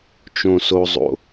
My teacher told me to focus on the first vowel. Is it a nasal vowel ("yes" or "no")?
yes